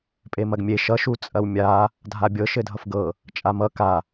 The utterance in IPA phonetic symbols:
pʼemɐɡmʲe ʃʌ ʃut͡sʼɐwmʲa | dʱabʲɤ ʃɘdʱʌfɡɤ | t͡ʃʼamʌ ka

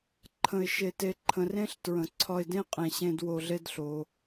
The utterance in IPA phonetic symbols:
ǃʰə̃˨ɪ̯ ʃe˨te˨ ǃʰə̃˨rẽ˦ɬ tɹə̃˨ǀʰɒ˧ɪ̯dẽ˦ qʼẽ˨ɕẽ˧d wo˧ɮe˦dɬo˧

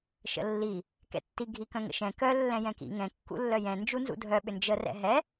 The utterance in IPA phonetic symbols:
ʃə̰lːi | kɛ̰tːi ɡʱikœ̃ŋə̰ʃɛ̃ kœ lːɛ̃jɛ̃kḭ ŋɛ̃ kːṵlːœjɛ̃ nd͡ʒunzṵdʱœ ɓʏnd͡ʒə rɛ̰ɦɛ

